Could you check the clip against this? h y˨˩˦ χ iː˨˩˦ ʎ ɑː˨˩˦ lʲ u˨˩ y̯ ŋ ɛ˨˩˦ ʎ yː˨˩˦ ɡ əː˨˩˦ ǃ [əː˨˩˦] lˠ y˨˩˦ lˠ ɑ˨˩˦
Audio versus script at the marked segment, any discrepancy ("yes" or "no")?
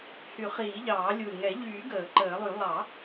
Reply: no